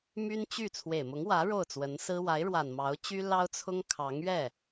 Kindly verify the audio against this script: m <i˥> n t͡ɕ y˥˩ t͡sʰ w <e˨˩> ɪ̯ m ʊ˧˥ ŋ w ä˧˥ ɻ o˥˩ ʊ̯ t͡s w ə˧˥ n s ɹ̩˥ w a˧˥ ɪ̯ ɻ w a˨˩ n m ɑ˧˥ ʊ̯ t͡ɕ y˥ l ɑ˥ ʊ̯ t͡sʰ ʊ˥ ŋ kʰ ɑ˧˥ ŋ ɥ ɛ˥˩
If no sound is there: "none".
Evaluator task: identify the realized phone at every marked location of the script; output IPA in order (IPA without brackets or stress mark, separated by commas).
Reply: y˥, e˨˩